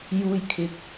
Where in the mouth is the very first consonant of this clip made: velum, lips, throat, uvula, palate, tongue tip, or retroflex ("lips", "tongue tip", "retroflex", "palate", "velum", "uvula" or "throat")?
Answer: palate